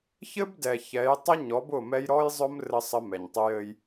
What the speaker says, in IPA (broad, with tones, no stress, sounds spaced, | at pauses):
ç ɘ˦ b d ɛ˨ ç ɛ˨˦ j tˤ ə˦ ɲ ɔ˨˦ b ʊ˦˨ m ɛ˦ j ɾ ɔ˦ j zˤ ʊ˦ m r ɘ˦ sˤ ə˦ m ɛ˨ ɲ tˤ ʊ˦ j ɘ˦ j